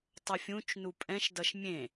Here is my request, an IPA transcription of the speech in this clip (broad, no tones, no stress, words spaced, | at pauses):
tˤʌfʲũt͡ʃnu pʼɛ̃ʃdʌʃ mʲẽ